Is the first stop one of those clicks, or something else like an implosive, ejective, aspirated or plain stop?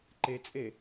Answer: click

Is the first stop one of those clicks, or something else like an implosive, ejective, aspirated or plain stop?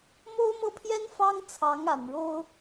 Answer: aspirated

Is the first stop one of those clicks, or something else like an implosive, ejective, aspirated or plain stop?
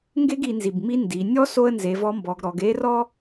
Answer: plain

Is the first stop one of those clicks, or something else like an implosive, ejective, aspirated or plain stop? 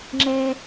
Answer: click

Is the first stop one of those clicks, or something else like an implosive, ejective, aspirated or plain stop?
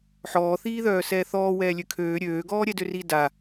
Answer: aspirated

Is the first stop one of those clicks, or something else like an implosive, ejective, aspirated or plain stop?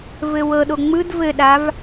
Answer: implosive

